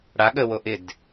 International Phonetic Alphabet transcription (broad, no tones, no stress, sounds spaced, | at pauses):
ɽ a ɠ ə w o ʔ ɪ d